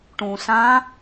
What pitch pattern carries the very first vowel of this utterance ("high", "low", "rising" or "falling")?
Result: low